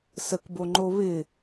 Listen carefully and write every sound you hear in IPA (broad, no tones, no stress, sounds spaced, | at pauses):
s ə k b o ŋ͡ǃ o β ɪ